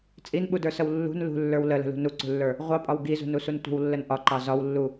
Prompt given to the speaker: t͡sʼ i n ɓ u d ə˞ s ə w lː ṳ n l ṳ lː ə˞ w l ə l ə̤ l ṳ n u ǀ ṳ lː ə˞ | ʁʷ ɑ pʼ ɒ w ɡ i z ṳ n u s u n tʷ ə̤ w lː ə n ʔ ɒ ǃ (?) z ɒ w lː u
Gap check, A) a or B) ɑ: B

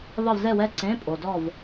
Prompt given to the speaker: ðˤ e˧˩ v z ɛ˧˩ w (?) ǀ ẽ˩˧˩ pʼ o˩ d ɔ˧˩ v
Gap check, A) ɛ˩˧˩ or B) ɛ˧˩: B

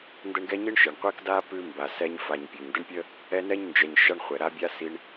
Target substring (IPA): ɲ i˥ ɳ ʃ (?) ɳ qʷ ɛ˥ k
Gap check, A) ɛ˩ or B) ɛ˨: A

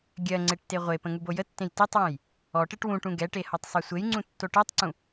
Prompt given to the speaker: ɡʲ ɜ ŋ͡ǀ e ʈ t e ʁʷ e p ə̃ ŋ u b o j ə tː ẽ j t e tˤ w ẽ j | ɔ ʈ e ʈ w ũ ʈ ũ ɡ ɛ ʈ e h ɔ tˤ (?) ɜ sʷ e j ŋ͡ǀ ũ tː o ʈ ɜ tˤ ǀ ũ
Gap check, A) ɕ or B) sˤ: B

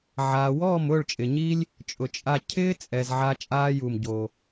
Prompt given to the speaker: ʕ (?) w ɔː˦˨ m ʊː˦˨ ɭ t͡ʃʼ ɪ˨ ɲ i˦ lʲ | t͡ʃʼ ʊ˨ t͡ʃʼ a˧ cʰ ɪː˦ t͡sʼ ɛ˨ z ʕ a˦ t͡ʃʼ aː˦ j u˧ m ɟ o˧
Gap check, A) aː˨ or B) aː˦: A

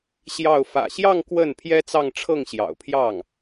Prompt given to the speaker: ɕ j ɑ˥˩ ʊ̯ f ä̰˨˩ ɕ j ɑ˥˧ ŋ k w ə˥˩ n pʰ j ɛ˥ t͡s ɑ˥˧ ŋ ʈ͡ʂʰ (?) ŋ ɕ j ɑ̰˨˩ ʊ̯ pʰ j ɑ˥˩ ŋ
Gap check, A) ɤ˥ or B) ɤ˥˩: B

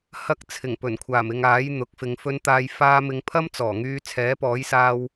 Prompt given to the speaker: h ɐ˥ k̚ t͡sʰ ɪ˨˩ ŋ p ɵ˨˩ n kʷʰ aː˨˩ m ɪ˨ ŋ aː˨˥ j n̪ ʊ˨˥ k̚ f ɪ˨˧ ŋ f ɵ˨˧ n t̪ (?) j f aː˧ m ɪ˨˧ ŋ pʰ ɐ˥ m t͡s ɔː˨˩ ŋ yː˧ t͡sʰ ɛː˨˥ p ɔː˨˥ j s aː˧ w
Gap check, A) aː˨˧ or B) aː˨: B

